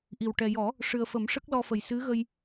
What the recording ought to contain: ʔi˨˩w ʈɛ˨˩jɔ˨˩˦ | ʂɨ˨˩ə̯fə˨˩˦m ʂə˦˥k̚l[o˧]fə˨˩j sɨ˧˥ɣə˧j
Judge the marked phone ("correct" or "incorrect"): incorrect